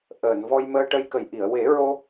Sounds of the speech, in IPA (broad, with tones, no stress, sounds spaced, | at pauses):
ʔ əː˨˩˨ n v ɔ˧ j m əː˧ ʈ ə˧ j k ə˨˩ j ʔ i˨˩˨ ə̯ w e˨˩˦ ɹ o˧